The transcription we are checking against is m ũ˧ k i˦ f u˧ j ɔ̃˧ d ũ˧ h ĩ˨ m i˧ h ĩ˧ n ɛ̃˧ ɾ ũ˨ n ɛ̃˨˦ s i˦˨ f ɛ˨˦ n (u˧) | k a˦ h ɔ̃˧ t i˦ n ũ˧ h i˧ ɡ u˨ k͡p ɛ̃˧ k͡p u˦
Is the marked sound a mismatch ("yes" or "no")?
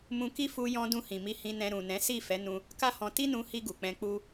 yes